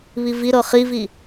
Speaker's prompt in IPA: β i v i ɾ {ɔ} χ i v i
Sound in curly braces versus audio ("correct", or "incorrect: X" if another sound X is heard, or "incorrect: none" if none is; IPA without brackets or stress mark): incorrect: ɤ